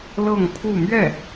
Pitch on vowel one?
falling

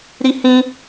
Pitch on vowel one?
high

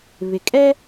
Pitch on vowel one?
low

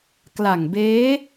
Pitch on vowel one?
low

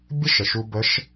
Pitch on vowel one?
high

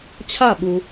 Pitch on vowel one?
falling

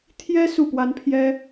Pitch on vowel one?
high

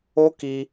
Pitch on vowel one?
high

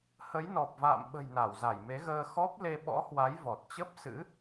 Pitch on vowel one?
rising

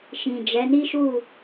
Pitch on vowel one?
low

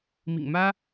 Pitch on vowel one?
low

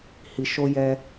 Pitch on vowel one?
low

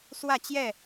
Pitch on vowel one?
falling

